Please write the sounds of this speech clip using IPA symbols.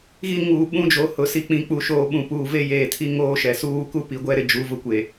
ɣi˦ ŋuː˨ ɓũ˦d͡ʒo˨˦ hʊ˨si˨ k͡pĩ˨ k͡pu˨ʃoː˨ ɓũ˨puː˨ve˦ jeː˨tʰi˦ŋoː˦ʃɛ˨ suː˦˨ku˦pi˨ɡʷɛ˦ ɾɪ˨d͡ʒu˨˦vʊ˦kʷe˨

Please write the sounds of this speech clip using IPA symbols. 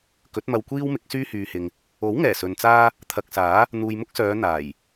kɵ˨˥t̚mɐ˧wkʷiː˥wmɪ˨˥k̚ syː˥hyː˨hɪ˨ŋ | o˨˥wŋɛː˨˩ sɵ˨nt͡saː˥ | t̪ʰɐ˨k̚saː˨˥ | n̪uː˨jmʊ˥k̚sœː˨˧ n̪aː˨˩j

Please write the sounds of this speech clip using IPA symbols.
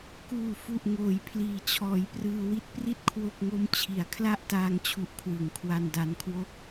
kuː˨˩fu˨˩ʔ ŋoː˩˦j pʰliː˩˦t͡ɕʰɔː˩˦jprɯː˧ wi˥˩t̚pri˥˩t̚ kʰwo˥˩k̚ŋo˥˩mt͡ɕʰi˨˩a̯ kʰla˥˩ʔtaː˧ŋt͡ɕʰu˨˩ʔ kʰwɯ˩˦ŋkʰwa˧nda˧nkʰwo˥˩k̚

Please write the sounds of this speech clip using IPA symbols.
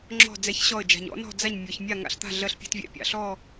ŋ͡ǁɔ̤˦˨ d͡zɛ˦˨çɕɔ˦˨ə̯d͡ʒa̤˨ɲ ɔ̰˨˦nɔ̤˦˨ d͡za˦˨ɲmʲɔ˨ç mʲa˦˨ŋa̰˨ɬt̪a̤˦˨ ɮɜ˦ɬpʲɛ̤˦tvʲɛ̰˨ pʲa̰˨ ɬɔ˦˨

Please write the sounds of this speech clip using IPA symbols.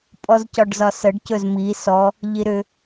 pʼɔzcɒɖzɒsəɖ cɵzmi sɔ | ʎiɾʏ

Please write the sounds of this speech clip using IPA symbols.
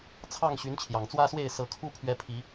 t͡sʰɑ˥˨ŋ ɕy˨˦nt͡ɕʰjɑ˨˩ŋt͡swä˦swe˥˨ɪ̯ sɤ˨˦kʰu˦pʰɥɛ˨˦ pʰi˨˦

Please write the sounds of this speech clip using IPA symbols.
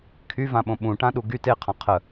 kʰyvãɓõ ɓũʈãɗu ɡy teqʰã qʰə

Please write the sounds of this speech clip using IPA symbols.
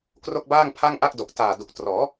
kro˥˩k̚baː˥˩ŋ pʰa˥˩ŋ ʔa˥˩k̚do˨˩k̚ taː˨˩du˨˩k̚ trɔː˩˦

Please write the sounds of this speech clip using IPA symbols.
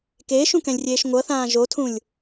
keːʃũkɛ̃lʲrʲeːʃ ŋʷʌθãː ʒotʰũlʲ

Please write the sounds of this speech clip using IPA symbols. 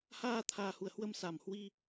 haː˧t̪ʰaː˨˩hu˧˩ə̯hwə˧m sa˧˩mhwi˧

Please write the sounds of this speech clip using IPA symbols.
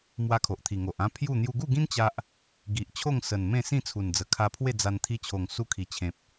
mwa˧ kʰo˨ʔt̪ʰi˨˩ ŋo˨ʔ ã˦ pʰju˥˧ n̪ju˧ɡu˥˧ɡĩ˦n t͡ɕa˦ʔ | ɡi˨ʔt͡ɕʰo˥˧ŋsə˨˩n mẽ˥˧ sĩ˥˧t͡sʰu˨˩nd͡zə˨˩ kʰa˧pʰwe˥˧d͡za˧n t̪ʰi˧t͡ɕʰo˨˩ŋsu˧ kʰi˨˩t͡ɕʰẽ˨p̚

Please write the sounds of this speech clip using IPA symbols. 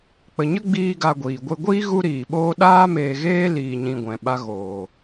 k͡pə˨ɲə˦ ɡ͡biː˦ɡa˧ɡʷiː˨ ɡʷe˧ɡʷiː˦ ɣu˦ɾiː˨ɓoː˦ ɗaː˦meː˧ɣeː˦ liː˧ɲĩ˧ɡʷɛ̃˨ ɓa˦ɣoː˨

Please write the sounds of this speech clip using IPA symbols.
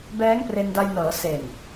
bɛː˦˥ŋpre˧nda˧jnɤː˩˦ se˨˩n

